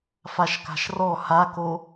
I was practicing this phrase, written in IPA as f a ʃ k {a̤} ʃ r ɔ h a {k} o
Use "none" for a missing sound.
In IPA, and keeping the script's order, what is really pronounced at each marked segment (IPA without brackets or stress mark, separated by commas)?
a̤, k